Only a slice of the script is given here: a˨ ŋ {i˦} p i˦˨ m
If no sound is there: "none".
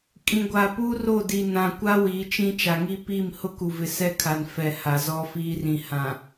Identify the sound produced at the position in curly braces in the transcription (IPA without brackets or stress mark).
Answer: i˦